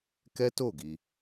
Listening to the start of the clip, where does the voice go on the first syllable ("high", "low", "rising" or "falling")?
high